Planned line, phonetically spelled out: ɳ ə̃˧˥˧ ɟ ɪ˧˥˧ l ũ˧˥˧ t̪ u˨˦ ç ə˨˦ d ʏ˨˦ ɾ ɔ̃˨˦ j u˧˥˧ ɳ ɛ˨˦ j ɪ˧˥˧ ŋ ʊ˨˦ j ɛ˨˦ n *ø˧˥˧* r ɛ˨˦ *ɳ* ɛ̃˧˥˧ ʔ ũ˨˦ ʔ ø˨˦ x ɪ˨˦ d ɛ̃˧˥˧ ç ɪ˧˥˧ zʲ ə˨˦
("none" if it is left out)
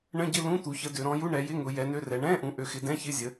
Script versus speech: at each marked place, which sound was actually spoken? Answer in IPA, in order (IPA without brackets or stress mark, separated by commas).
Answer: ø˧˥˧, ɳ